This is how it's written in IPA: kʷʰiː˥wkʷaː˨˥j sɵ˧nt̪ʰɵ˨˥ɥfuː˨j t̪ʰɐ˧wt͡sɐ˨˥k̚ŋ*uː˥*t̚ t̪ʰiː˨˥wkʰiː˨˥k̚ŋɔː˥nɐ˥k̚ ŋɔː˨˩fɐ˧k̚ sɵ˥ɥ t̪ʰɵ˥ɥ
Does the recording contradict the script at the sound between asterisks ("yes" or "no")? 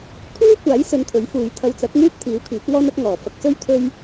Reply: no